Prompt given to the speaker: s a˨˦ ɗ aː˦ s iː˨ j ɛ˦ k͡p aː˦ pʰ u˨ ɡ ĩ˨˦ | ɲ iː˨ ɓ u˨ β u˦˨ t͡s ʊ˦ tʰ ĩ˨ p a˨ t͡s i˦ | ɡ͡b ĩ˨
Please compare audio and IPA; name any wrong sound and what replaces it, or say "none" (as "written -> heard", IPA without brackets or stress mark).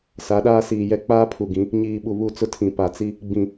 none